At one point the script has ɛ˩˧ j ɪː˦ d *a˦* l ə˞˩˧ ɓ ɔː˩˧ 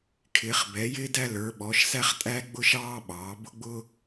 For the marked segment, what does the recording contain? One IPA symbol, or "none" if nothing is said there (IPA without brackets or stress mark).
æ˦